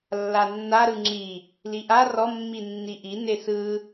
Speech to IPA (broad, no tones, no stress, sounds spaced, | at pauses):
lː a nː a ɾ ɯ ŋ͡ǁ i | l i ʔ a r ɔ mː i nː i ʔ i n e s ɯ